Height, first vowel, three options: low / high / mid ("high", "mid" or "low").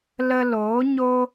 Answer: mid